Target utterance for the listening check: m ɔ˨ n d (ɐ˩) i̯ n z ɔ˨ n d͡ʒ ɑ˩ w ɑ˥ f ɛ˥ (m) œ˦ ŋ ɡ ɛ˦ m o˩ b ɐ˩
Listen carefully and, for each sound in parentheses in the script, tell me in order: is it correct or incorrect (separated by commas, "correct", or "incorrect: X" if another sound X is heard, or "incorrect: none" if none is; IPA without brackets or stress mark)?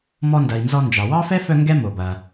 correct, incorrect: f